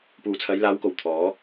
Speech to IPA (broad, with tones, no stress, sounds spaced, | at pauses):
p uː˨ t͡sʰ ɐ˨˧ j l aː˨˧ w k o˨˩ w t̪ʰ ɔː˨˥